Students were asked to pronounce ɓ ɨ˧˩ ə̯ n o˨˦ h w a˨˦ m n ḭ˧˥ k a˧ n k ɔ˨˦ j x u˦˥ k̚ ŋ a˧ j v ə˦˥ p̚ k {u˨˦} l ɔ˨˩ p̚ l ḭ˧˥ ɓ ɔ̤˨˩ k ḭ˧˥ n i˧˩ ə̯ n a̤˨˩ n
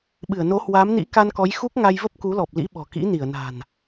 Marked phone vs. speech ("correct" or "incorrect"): correct